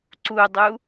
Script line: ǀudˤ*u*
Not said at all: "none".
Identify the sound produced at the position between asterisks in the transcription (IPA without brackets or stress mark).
u